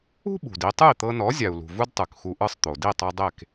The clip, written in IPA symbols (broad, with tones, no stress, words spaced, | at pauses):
ṳ˥ɓṳ˩di˧ tˤɯ˥˩i̯t̪ɤ˧nɔ˩˥ zʲa˩u̯lṳ˩ vu˥dtˤɯ˩kxu˧ʔɯ˥˩sˤ t̪o˩di˥˩tˤu˧ dˤe˥˩k